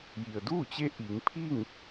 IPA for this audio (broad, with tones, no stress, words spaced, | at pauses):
ji˩ə̯duː˥˨t͡ɕe˧˥ ʔiː˩˧ŋpʰiː˥˨ŋ